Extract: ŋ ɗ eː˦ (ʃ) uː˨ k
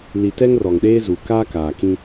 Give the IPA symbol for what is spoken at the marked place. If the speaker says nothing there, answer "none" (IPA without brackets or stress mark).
z